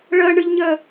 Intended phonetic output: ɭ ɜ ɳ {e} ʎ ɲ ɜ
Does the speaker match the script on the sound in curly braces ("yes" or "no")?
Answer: no